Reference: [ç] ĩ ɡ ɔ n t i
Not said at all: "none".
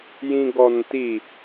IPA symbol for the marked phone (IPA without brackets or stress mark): j